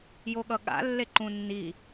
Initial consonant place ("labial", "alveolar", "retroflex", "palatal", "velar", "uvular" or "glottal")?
palatal